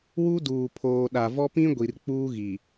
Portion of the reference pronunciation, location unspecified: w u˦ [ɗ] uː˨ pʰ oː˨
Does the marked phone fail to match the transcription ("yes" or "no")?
yes